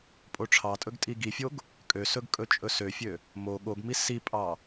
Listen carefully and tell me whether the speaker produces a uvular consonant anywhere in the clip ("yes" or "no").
no